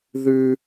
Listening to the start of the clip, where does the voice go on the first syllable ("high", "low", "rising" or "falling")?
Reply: high